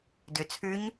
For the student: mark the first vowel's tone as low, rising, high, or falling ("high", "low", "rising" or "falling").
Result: low